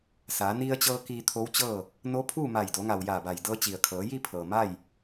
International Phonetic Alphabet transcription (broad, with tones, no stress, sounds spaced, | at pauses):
s aː˩˧ n i˧ ə̯ t͡ɕ ɤː˧ k iː˧ t̪ʰ o˧˥ w t͡ɕ ɤː˥˨ | n o˧˥ pʰ uː˥˨ m a˧˩ j d o˩˧ ŋ a˩ w j aː˧˩ b a˧˩ j d ɤː˧ t͡ɕ i˩ ə̯ kʰ ɤː˩˧ j i˥˨ pʰ ɤː˩ m a˥˨ j